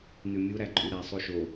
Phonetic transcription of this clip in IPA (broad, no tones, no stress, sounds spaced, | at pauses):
n ʉ mʲ u ɾ æ ǃʼ y ɾ æ sˤ o ʃ o